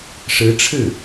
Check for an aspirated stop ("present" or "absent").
present